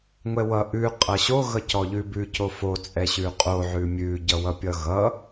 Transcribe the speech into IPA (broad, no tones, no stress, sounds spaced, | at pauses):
ŋʷ ɛ w ʌ ʔ ʉ qʼ ʌ ɕ o ɣ ʌ c ɔ ʎ ʉ b ʉ c o f o t͡sʼ ɛ ɕ ʉ qʼ o ʕ ʉ mʲ ʉ ɟ ʌ w ʌ pʲ ʌ ɣ ʌ